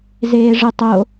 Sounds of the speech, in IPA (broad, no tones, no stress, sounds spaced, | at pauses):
z eː ʐ ɨ tˤ o